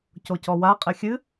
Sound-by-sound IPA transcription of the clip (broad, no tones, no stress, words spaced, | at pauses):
cocɔwa qʼɘxʲɨ